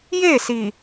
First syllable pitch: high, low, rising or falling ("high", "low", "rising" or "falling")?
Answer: falling